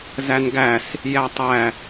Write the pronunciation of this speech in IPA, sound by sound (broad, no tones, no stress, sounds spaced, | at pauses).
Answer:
z æ n ɡ æ s | j æ tˤ æ